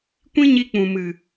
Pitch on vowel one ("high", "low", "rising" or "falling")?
high